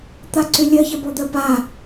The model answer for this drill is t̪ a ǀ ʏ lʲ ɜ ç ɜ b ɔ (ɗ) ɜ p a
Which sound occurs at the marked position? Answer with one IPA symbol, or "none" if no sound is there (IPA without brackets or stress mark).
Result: d̪